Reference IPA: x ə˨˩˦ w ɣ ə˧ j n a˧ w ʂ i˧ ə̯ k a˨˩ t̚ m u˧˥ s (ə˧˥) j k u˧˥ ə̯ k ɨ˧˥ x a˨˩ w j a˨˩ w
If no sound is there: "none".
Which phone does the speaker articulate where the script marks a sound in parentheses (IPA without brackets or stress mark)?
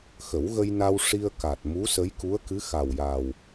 ə˧˥